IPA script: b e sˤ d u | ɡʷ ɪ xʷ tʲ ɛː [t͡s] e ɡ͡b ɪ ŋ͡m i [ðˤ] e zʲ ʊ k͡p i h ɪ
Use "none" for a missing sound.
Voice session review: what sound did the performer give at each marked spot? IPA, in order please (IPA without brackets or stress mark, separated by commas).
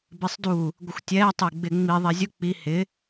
tˤ, ðˤ